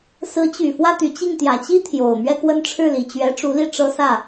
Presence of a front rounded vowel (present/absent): present